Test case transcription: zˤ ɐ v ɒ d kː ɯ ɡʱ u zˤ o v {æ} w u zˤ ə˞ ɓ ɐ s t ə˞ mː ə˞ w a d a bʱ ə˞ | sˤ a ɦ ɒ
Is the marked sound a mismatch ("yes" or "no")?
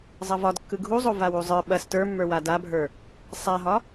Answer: yes